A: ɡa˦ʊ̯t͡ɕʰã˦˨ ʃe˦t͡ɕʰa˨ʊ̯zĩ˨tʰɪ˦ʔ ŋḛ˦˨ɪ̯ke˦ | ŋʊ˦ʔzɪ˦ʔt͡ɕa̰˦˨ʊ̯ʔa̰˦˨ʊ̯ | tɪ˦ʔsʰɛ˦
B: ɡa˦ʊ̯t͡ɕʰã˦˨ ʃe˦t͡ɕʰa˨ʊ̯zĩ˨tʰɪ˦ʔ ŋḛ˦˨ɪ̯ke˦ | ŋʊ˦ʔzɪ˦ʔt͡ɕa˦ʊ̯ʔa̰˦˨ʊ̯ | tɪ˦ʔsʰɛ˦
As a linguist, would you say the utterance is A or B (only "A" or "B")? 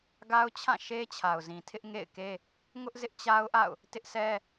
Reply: B